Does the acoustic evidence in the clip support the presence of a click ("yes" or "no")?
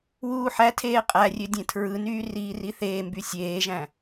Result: no